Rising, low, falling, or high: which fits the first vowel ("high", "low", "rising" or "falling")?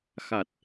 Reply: low